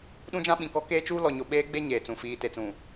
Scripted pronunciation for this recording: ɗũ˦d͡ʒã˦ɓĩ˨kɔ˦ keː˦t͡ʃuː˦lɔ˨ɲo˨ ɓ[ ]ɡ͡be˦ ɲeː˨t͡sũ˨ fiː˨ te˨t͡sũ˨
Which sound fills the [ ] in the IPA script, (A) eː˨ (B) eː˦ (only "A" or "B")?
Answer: B